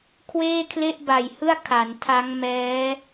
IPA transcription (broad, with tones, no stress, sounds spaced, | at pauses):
kʰ w eː˥˩ kʰ l e˥˩ ʔ b a˨˩ j h ɯ˥˩ a̯ kʰ a˩˦ n tʰ a˦˥ ŋ m ɛː˦˥